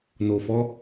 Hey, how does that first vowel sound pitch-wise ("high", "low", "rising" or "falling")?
low